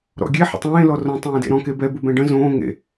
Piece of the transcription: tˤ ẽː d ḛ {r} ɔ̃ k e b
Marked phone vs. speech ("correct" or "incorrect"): incorrect